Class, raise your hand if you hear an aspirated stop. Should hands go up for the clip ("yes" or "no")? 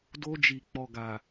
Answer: no